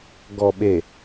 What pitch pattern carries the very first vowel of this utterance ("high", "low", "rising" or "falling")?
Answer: low